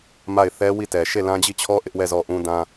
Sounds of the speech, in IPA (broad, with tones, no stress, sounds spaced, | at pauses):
m a˦˨ ɪ̯ θ ɛ˦ w i˦˨ t ɛ˨ ʃ e˦˨ l ã˦ d͡ʑ i˦˨ t͡ɕʰ ɔ˦ ʔ ɪ˦ ʔ w ɛ˦˨ z ɔ˦˨ ʔ ũ˦ d ã˦